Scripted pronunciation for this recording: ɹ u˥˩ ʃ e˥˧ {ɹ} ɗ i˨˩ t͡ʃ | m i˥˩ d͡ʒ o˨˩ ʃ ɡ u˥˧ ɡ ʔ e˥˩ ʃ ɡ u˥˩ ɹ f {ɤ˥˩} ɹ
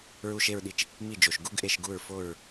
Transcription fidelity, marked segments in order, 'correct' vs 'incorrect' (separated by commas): correct, incorrect